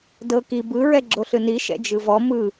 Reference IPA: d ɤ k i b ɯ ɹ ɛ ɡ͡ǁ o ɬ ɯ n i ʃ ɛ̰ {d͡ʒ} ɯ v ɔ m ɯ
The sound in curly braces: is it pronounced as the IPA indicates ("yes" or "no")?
yes